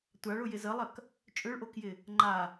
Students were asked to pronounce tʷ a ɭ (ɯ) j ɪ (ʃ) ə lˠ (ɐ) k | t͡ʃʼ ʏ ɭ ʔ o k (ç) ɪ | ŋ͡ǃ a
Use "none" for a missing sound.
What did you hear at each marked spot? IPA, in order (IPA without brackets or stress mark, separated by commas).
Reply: ʊ, z, ɐ, j